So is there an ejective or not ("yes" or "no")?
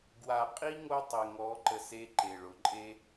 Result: yes